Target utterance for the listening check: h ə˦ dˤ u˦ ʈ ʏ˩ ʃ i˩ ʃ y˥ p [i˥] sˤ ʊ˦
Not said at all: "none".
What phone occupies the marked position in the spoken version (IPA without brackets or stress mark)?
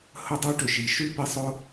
i˦